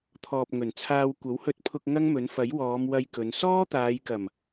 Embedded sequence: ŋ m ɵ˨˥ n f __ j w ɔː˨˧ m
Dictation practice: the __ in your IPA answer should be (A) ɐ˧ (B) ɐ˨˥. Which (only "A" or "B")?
B